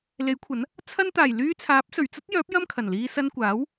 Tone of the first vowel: rising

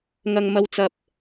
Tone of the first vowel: low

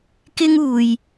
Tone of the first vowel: high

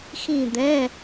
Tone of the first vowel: falling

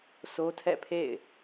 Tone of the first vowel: high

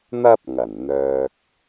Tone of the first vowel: high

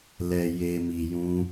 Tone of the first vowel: low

